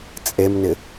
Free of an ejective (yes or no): no